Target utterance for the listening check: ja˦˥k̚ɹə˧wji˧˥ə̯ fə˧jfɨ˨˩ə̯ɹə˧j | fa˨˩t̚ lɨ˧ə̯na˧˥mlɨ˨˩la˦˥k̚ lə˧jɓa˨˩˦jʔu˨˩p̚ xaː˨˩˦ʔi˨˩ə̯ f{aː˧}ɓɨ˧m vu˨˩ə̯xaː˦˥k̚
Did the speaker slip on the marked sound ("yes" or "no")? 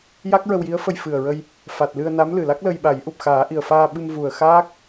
no